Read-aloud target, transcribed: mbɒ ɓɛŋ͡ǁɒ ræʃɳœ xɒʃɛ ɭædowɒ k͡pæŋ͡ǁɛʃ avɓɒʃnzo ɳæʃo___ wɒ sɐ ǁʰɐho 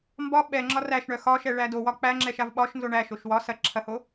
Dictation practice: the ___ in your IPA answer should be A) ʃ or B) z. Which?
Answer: A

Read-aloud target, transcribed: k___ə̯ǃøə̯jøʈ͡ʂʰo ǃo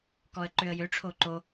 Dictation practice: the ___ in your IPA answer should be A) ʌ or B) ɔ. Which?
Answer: B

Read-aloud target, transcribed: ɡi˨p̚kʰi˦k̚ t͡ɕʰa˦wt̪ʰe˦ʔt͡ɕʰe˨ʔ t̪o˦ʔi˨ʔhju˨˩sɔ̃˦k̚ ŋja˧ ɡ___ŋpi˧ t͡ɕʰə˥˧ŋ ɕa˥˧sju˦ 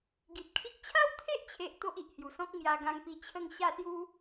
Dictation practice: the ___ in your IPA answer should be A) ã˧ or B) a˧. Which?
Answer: A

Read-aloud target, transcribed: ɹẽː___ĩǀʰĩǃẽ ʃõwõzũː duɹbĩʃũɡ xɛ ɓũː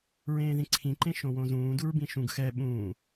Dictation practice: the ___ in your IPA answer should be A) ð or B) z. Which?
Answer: A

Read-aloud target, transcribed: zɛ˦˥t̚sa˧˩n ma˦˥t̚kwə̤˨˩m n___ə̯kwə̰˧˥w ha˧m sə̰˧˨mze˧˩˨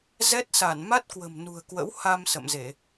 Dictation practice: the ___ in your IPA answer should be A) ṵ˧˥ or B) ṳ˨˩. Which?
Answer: B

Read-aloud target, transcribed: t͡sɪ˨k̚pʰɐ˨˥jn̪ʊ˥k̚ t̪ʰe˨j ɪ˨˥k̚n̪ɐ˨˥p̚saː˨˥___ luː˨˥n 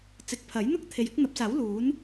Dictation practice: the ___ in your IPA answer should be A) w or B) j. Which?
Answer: A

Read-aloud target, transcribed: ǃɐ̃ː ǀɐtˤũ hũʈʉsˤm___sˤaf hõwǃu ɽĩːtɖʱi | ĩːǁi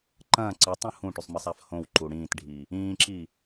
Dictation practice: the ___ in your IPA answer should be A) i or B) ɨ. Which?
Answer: B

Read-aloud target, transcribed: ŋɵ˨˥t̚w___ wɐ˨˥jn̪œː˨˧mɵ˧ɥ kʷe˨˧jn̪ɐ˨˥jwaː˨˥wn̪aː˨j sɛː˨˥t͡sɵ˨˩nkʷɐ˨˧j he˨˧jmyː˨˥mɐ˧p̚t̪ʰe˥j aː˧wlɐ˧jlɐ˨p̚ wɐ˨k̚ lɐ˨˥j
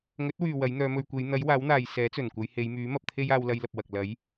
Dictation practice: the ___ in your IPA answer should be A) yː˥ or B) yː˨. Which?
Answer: B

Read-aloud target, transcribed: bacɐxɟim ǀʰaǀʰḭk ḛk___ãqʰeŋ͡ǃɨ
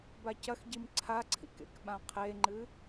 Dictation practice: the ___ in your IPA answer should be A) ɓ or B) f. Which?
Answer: A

